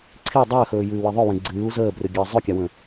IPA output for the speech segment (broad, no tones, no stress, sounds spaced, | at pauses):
ǀʰ i dˤ əː x ɵː j ɨː w i ðˤ œ w ɛ̃ ɡ͡ǀ ɨː u̯ z əː b r ɨ ɡʲ əː zˤ œ kʲ a w ə̃